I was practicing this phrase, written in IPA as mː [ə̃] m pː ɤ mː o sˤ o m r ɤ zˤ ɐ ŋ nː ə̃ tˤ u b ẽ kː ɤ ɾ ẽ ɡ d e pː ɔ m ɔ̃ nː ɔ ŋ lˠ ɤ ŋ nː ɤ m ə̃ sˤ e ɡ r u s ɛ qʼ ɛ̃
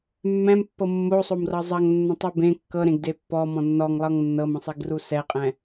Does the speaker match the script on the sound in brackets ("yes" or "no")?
no